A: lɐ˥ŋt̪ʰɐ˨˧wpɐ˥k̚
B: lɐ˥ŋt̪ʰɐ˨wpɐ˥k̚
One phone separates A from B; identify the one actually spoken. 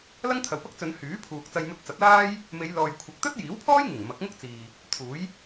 B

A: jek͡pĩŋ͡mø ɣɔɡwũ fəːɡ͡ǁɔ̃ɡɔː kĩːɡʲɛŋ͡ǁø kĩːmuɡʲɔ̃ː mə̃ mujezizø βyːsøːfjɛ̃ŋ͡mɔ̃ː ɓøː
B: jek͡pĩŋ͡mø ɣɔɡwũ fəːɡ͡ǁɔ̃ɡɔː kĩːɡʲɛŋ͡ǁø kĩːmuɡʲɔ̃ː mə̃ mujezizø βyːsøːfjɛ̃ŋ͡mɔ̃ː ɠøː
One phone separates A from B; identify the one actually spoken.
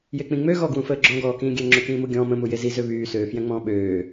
A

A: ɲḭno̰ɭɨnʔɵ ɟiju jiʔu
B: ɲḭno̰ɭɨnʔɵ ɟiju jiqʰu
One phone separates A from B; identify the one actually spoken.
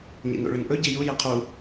B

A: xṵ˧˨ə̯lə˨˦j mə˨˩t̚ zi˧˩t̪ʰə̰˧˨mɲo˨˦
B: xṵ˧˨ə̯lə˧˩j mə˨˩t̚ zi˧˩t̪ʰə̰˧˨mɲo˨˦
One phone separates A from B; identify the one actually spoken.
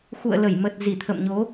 B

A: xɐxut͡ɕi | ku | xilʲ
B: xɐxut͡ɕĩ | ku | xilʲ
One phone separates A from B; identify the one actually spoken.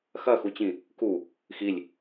B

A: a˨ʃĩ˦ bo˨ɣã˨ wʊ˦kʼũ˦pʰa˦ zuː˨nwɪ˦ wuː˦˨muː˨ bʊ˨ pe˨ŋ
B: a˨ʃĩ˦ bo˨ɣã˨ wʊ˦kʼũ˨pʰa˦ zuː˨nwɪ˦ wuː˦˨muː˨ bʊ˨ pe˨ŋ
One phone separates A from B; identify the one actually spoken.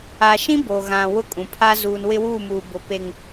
B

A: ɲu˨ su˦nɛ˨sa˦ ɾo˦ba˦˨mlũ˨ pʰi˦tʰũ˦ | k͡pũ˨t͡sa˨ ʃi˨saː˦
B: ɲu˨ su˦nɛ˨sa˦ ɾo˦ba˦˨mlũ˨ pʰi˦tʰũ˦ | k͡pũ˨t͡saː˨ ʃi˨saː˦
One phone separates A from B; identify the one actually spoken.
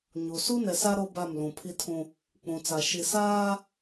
A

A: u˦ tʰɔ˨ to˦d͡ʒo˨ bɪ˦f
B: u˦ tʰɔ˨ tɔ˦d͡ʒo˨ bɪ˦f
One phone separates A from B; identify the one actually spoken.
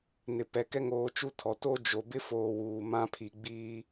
A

